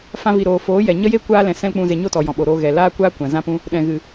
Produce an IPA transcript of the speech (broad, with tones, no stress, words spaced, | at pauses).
fã˧vi˨ɾoː˨ foː˨˦jɛ˨ ɲə˦je˦ kʷaː˦ lɛ̃˧ sɛ̃˦lk͡pũ˧ ze˨ɲo˦˨ tɔ˨ jɔ̃˨ɓo˨ɾoː˧ ɣɛ˨ laː˦kʷaː˦ kʷã˨zã˦pũ˦ | ɗɛ̃˨ɣɨ˨